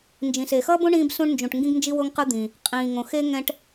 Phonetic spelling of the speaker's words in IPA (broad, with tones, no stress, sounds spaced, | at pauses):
n d͡ʒ ĩ˩ s e˩ x ʌː˥ b õ˥ ɳ ĩː˥ b s ũ˥ ɳ n d͡ʒ ũ˩ ʈ ŋ ɡ ĩ˥ ɡ n d͡ʒ i˥ w o˥ ŋ q ɯ˥ d̪ ĩ˩ | qʼ ĩː˩ ŋ õ˩ x e˥ ŋ ɛ̃˥ ʈ